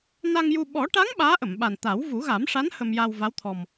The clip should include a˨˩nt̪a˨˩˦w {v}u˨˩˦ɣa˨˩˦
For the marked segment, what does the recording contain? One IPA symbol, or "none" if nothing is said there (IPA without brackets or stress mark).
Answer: v